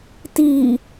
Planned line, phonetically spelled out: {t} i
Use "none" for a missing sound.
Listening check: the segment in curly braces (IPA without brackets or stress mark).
t